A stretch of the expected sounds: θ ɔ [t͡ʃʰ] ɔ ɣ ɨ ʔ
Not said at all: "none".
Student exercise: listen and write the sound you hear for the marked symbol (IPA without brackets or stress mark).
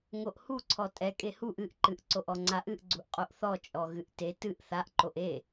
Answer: t͡ʃʼ